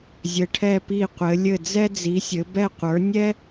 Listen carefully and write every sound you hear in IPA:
zʲɘ˨˦ʈʰɛ˦˨pi˦˨qʷɘ˨˦ lʲɘ˦˨d͡zɛ˦ d͡zi˨˦sʲɘ˨˦ bɛ˦˨qʷə˞˨˦ nʲɛ˦

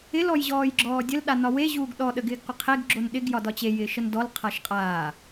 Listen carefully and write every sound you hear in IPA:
ɪl ɔjʑɔːjɡ͡ǁɔːdʲəl ɗanɒwe ʑuːɡɗɔ ɗəɡɪːɡqʷɪqʰeɡ ɡ͡ǁonɗɪɡ jɒdɒt͡ɕe jɪːʃəndɔl qʰaʃqʼaː

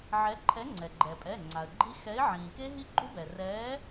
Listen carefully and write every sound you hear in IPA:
ʕɛ˨˥ ǃʰɛ˨˥ŋ͡ǀɛ˩ɡ͡ǃɛ˩pʼɛ˩˧˩ ŋ͡ǀa˩ə̯ɡ͡ǃi˦˥ xɛ˨˥ɪ̯ʕĩː˩ke˦˥ ɦi˦˥ɡ͡ǃu˦˥bɛ˩ rɛː˨˥

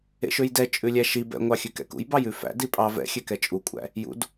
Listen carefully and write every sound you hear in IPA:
ḛʃøjdɛ t͡ʃʼʉlʲæʃi bɛ̰ŋʷɑ xʲʉkɛ̰kṵj bɑjʉfæ̰ dipʼɑ vɛ̰xʲøkɛ t͡ʃʼukʷʼæ̰ | jṵd

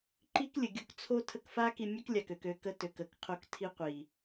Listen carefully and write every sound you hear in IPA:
ǃi˦klʲə˨ɡʲo˧k t͡sʰo˦ tʰə˦k fa˦ki˧mʲø˦k lʲa˨kø˨kø˧ kə˧tø˨k ə˨kqʰo˧k tʰi˦ qʷi˨

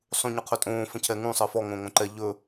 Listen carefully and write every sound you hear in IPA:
sˤũɲɵqʰɵtʼõː fə̃cʰɛŋũ sˤəːfɔ ŋõːŋõǃɛ ʎɵː

